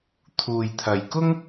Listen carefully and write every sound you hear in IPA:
t̪ʰ uː˨ j t̪ʰ ɐ˨ j k ʊ˥ ŋ

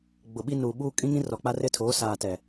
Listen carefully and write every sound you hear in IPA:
ɡ͡b ʊ˨ ɓ i˦ n uː˨ ɓ uː˦ kʼ ĩ˦ ŋ ĩ˦ r ɔ˨ k͡p a˦ r ɪ˦ tʰ oː˨˦ s aː˨ t ɛ˨

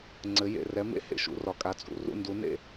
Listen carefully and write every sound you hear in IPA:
ŋ͡ǀ ɘ˩˧ j ḛ˧˩ r ɛ˩˧ m ḛ˧˩ h ḛ˩˧ ʃ ṵ˩˧ r ɒ˩˧ kʼ a˩˧ t͡sʼ ṵ˧˩ r ṵ˧˩ n d u˩˧ n ḛ˧˩

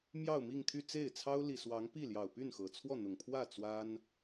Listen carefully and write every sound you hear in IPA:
m j ɑ˥˧ ʊ̯ m i˥˧ ŋ t̪ʰ y˥˧ t͡s e˥˩ ɪ̯ t͡sʰ ɑ˥ ʊ̯ l i˨˩ s w ɑ˧˥ ŋ p i˥˩ l j ɑ˨˩ ʊ̯ p y˥˩ n x ɤ˨˩ t͡sʰ w ɔ˥˩ n̪ ʊ˨˩ ŋ pʰ w ä˥˩ t͡s w a˥ n

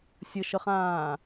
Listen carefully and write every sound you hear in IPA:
sʲ ə ʃ ə χ ãː

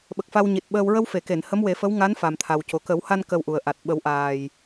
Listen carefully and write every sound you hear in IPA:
ɓ ə˨˩ k̚ f a˧ w ɲ i˨˩ t̚ ɓ əː˧ w ɹ ə˧ w f e˨˩˨ k e˨˩˨ n h ə˧˥ m w e˨˩˦ f ə˧˥ w ŋ a˧˥ n f a˨˩ m t̪ʰ a˨˩ w c o˨˩ k ə˨˩˦ w h a˧ n k ə˧ w ʔ u˨˩ ə̯ ʔ a˨˩ t̚ ɓ ə˨˩˦ w ʔ aː˨˩ j

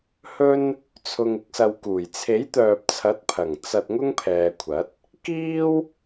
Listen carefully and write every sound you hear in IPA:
h ɵ˥ n | t͡sʰ ʊ˨ ŋ ɪ˧ k̚ s ɐ˨ w k uː˨˩ j t͡sʰ e˨˥ j t̪ œː˨ p̚ t͡sʰ ɐ˨˥ t̚ pʰ ɐ˨˩ ŋ t͡s ɐ˧ t̚ ŋ ʊ˥ ŋ pʰ ɛː˨ kʷʰ ɐ˨˥ t̚ | k iː˥ w

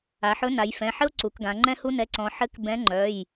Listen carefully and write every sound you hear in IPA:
a˩˧ ħ ɵ˨˥ n a˩˧ j f ɛ̃˩˧˩ ħ ɘ˦ o̯ ǀ u˩˧ k ɡ ã˩˧ ŋ͡ǃ ɛ̃˦ h u˦ n ɛ˩˧˩ ǀ ɔ̃˩˧ ħ ɘ˨˥ k b ɛ̃˨˥ ŋ͡ǃ œ˩˧˩ j

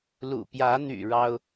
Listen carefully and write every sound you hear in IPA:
l ṵ˨˩ p j ä˨˦ n̪ y̰˨˩ ɻ ɑ˦ ʊ̯

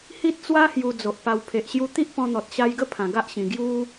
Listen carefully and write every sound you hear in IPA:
h i˦ t̚ t͡s w a˦ h j u˧ d͡z o˨ ʔ p a˧ w pʰ e˨ ʔ ɕ j u˧ t̪ i˦ ʔ p ɔ̃˧ n̪ ɔ˨ t̚ ɕ a˧ j ɡ ə˦ pʰ ã˨˩ ɡ a˦ ʔ ɕ ĩ˨˩ ɡ j u˦

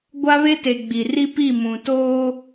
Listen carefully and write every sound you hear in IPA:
ɡʷ a˦ β e˦ t e˨ ɡ͡b i˨ r i˦ p i˦˨ m ũ˨ t oː˦

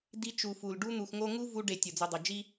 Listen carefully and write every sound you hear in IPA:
d i˧ t͡ʃ u˨ f u˨ l ɖ u˧ n̪ u˨ x ŋ o˧ ŋ u˦ v u˦ ɖ e˨ tʲ o˨ d͡z u˨ dˤ o˨ d͡ʒ i˦

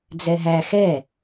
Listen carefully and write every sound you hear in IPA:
d͡z ɛ ɦ æ x ɛ

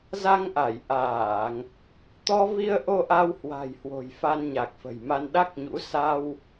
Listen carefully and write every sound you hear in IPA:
z a˧ ŋ ʔ a˧˩ j ʔ aː˧˩˨ ŋ | t̪ ɔ˧ v i˧ ə̯ ʔ o˧ ʔ a˧ w h w a̤˨˩ j h w o̤˨˩ j f a˧ n ɲ a˨˩ k̚ f ə̤˨˩ j m a˧ n ɗ a˦˥ k̚ ɲ ṵ˧˥ s a˧ w

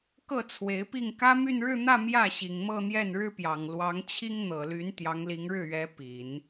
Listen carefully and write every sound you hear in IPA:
k ɤ˥˩ t͡sʰ w e˧˥ ɪ̯ p i˥˩ ŋ k ä˥ m y˥˧ n ɻ ɻ̩˥˧ n̪ ä˥˧ m j ä˥˩ ɕ i˨˩ ŋ m ɤ˥˧ n̪ j ɛ˥˩ n ɻ ɻ̩˥ p j ɑ˨˩ ŋ l w ɑ˧˥ ŋ t͡ɕʰ i˥ ŋ n̪ ɤ˨˩ l y˧˥ n t̪ j ɑ˧˥ ŋ l i˧˥ ŋ ɻ ɻ̩˥˩ ɥ ɛ˧˥ p i˨˩˦ n

